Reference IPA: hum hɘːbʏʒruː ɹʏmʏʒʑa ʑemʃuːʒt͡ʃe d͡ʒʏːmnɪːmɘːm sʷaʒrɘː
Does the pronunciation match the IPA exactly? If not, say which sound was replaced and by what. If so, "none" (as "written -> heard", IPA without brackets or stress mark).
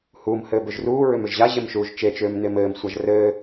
d͡ʒ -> t͡ʃ